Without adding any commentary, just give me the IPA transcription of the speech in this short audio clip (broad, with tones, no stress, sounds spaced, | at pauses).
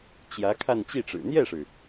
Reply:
t͡ɕ j ä˧˥ kʰ a˥˧ n t͡ɕ i˥˩ ʈ͡ʂ ɻ̩˨˩ n̪ j ɛ˥˩ ʂ ɻ̩˩